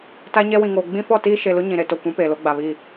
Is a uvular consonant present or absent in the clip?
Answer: absent